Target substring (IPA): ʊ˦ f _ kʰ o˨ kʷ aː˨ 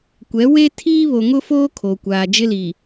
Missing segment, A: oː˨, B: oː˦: B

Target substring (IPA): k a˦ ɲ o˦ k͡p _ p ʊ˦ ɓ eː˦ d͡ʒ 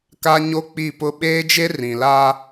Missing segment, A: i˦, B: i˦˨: B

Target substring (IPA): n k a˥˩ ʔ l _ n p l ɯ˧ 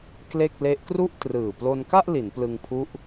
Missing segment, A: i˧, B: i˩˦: B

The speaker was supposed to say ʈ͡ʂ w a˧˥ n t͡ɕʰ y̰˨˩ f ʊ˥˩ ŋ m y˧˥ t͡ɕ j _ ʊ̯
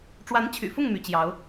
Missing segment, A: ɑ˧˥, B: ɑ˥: A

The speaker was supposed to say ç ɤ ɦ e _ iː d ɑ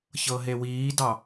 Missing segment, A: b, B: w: B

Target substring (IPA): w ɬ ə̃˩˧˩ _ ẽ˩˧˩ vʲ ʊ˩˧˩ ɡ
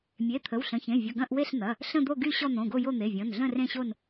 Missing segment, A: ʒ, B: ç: B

